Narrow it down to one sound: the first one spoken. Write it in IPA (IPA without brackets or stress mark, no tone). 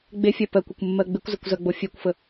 ɡ͡b